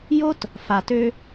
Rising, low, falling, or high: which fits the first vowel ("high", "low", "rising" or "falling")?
high